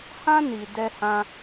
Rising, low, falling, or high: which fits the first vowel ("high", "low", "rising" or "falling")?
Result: high